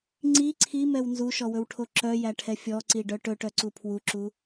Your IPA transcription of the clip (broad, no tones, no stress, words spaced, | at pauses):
ŋ͡ǀi ǀʰimɛw nzuʃɔwɵwʈʰo ǁœjæʈʰɛ fʲɔǀiɖœ ʈɵʈœǀu pʰwuǁu